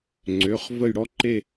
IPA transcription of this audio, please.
ŋ͡ǀ ø˩˧˩ χ v ə˦˨ j ɽ ɔ˦ ǃ e˦˨

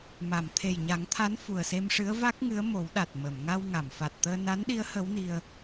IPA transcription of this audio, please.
m a˨˩˨ m t̪ʰ e˨˩ j ɲ a˨˩˦ ŋ t̪ʰ a˧˥ n f u˨˩ ə̯ s e˧ m ʂ ɨ˧˥ ə̯ v a˦˥ k̚ ŋ ɨ˧˥ ə̯ m o˨˩˦ w ɗ a˨˩ t̚ m ə˨˩˨ m ŋ a˧ w ŋ a˨˩˨ m f a˨˩ t̚ t̪ əː˧ n a˧˥ n ɗ i˧˥ ə̯ h ə˧˥ w n i˧ ə̯

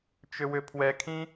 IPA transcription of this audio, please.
t͡ʃ ʏ w ʏ pʰ w ɛ kʰ ĩ

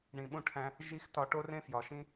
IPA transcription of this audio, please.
ɳ ĩ˨ ɓ ũ˧ ʈʰ æ̃˧ | ʒ i˦ x t ɒ˧ ʈ o˦ r ẽ˦ f j ɒ˨ ʃ ĩ˦

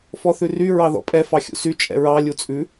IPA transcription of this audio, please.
f ɔ θ ʉ r y ɹ ɑ ð ɔ̰ pʼ ɛ f ɑ xʲ ṵ s y t͡ʃʼ ɛ̰ ɹ ɑ lʲ u t͡sʼ ʉ

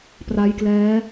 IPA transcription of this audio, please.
p r a˦˥ j k l ɛː˦˥

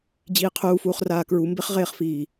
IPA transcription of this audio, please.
d͡ʑ iː qʰ uː f uː χ r aː k ɹ u m b e χ ʁ eː χ f iː

